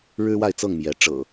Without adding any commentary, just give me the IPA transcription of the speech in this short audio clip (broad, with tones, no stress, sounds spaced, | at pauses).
ɻ ɻ̩˦ w a˥˨ ɪ̯ t͡s ɤ˥˨ ŋ m j ɛ˨˦ ʈ͡ʂ ɤ̰˨˩